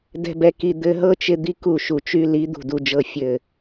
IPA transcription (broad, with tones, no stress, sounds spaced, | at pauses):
d ɛ̤˦ b ɛ˧ k i˧ d̪ ɘ˧ ɦ ɤ˦ t͡ʃ ɪ˧ d̪ i˦ k u˦˨ ʃ u˨ t͡ʃ y˧ l i˨˦ d̪ ṳ˨ d u˨ d͡ʒ ɤ˨ fʲ ɘ˨